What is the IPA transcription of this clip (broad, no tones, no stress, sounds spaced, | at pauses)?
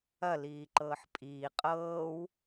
ɐ l iː ǃ ɤː ħ pʼ iː qʼ ɤː w